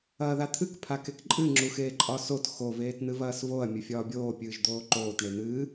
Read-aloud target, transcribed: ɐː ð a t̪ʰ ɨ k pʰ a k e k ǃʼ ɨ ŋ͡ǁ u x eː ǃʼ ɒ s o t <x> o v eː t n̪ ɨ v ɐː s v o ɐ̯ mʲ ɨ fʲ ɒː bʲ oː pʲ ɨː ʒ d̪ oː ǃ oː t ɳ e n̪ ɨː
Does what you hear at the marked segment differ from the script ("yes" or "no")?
no